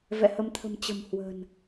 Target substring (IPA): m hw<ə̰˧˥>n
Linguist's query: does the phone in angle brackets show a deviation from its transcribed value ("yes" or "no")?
yes